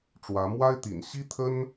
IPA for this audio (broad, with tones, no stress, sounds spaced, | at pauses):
ʈ͡ʂ w ä˧˥ m w a˥ ɪ̯ t̪ ḭ˨˩ n ɕ i˥ t̪ʰ ə˥ n